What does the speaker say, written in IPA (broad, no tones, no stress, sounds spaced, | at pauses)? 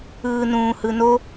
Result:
ɯː n ũː h ɯ n o